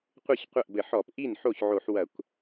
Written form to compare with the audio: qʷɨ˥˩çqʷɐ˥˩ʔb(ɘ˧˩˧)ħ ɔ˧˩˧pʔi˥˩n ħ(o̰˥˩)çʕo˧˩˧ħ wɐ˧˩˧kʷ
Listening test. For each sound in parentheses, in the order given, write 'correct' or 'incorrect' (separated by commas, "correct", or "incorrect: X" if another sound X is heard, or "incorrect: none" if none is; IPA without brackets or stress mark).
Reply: correct, incorrect: o˥˩